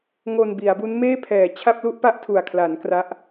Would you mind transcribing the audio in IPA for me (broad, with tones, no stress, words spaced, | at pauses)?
ŋo˧nbi˩˦a̯bu˦˥n meː˥˩pʰɛː˨˩ t͡ɕʰa˥˩p̚lu˥˩ʔpa˥˩ʔtʰu˨˩a̯ kʰla˩˦n kra˦˥ʔ